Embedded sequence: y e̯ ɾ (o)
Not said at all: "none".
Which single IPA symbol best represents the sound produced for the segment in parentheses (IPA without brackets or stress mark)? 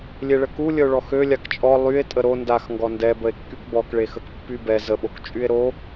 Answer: o